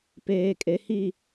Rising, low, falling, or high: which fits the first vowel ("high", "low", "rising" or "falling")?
low